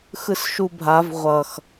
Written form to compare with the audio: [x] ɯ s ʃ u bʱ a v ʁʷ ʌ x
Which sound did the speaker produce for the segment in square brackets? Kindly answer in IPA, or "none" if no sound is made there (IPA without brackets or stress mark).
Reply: x